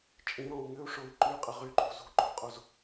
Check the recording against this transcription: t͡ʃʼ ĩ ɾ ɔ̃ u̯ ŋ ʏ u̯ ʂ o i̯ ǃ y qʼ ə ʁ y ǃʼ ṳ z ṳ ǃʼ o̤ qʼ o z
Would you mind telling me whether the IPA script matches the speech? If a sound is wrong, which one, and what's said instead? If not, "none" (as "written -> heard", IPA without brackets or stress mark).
none